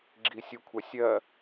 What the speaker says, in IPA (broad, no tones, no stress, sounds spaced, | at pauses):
ɡ͡ǁ i sʲ ɯ kʷʰ ɛ sʲ ɜ